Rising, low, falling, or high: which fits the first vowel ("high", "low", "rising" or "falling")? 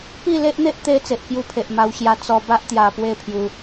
falling